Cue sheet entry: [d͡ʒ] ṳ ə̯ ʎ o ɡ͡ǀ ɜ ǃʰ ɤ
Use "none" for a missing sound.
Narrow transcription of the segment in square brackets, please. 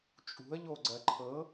t͡ʃʼ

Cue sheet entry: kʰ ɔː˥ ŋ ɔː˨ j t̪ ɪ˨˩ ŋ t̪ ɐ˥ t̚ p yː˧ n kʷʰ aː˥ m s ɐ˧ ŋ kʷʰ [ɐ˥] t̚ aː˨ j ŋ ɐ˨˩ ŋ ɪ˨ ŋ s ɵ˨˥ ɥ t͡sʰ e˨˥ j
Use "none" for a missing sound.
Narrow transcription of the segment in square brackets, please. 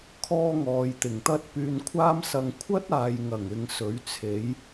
ɐ˥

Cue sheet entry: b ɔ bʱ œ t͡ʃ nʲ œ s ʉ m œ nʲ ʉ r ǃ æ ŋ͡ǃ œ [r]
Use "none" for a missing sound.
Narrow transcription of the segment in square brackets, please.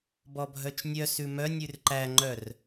r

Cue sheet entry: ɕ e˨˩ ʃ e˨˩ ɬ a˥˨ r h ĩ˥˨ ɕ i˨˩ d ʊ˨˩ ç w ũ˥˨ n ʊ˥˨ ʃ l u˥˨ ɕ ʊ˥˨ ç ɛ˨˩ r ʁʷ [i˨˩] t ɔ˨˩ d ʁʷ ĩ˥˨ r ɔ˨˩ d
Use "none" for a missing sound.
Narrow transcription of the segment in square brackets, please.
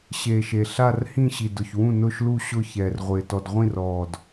ɪ˨˩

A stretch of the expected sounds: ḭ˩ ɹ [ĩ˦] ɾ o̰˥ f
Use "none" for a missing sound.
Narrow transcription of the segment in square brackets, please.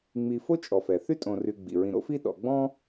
ĩ˨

